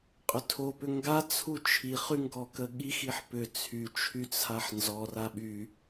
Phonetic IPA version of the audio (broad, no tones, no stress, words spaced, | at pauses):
qʼʏtʰo pʏŋɡa t͡sʰut͡ʃʰi χyŋɡɔkəɠi xiħpʏ t͡sʰy t͡ʃʰyt͡sʰaħnzɔ raɓy